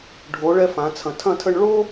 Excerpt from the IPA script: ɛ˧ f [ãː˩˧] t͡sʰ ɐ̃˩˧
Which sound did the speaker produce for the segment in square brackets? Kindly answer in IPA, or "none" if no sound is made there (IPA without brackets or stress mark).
ã˩˧